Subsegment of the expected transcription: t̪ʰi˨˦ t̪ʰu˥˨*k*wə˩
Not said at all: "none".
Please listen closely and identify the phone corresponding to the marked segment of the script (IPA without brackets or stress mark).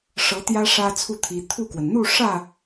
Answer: k